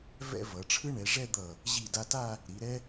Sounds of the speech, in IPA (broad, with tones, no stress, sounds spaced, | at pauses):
v ɛ̰˥˧ v ʌ˩˧ ʈ͡ʂʰ ɯ˥ ɳ ɛ˩˧ ʐ ɛ˥˧ d̪ ʌ˧˩ | ʑ i˧˩ d a˧ t a˥˧ | ɾ i˩˧ ɾ ɛ˥